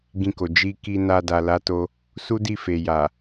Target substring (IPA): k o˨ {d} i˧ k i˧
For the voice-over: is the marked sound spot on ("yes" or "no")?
no